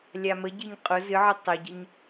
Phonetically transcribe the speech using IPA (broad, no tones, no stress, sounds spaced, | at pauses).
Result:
lʲ a m ə ɟ ɨ ɲ qʼ ʊ z ɨ ʕ ɨ tˤ ə ɟ ə ɲ